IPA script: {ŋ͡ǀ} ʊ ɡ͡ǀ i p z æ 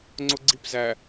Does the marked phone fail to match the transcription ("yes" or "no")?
no